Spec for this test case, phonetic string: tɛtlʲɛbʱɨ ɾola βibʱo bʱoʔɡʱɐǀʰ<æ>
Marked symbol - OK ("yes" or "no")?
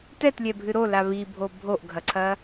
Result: no